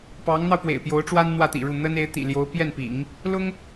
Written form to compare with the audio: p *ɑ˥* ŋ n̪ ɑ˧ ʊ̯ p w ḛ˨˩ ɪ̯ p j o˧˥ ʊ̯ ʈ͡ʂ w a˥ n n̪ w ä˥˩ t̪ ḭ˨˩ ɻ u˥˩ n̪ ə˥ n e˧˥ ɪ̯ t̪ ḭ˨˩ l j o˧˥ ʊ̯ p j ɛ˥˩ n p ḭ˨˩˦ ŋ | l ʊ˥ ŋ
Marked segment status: incorrect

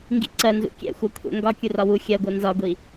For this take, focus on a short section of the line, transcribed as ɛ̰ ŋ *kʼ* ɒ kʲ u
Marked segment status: incorrect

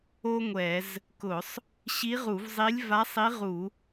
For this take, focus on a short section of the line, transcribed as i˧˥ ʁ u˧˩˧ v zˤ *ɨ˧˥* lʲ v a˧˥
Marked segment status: incorrect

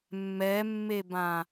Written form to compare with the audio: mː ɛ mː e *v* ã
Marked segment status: incorrect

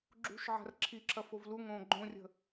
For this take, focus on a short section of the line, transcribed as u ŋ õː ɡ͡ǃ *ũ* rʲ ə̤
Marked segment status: incorrect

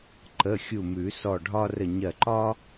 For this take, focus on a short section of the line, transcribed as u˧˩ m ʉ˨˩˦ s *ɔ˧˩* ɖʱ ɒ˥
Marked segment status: correct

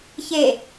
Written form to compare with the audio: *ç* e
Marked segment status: correct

